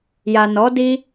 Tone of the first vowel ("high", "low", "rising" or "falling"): low